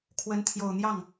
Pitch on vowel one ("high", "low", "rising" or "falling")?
rising